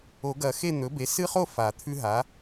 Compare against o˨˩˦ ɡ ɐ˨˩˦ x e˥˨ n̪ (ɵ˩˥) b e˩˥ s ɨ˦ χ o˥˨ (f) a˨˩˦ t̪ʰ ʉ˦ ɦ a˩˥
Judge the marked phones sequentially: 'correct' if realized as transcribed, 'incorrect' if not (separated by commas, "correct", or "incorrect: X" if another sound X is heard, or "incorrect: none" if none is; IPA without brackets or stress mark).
correct, correct